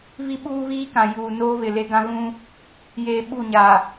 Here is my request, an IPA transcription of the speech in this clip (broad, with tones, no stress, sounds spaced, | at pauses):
β i˦ ɓ uː˦ β iː˦ k ã˨ j uː˨ n oː˦ β ɪ˨ l e˦ ɡ ã˦ ɣ ũ˦ | j eː˨ ɓ u˦˨ ɲ a˨